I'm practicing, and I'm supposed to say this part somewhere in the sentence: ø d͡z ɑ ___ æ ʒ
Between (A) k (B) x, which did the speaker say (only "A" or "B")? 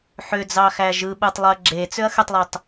B